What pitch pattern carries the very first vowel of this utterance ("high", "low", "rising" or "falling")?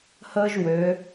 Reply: high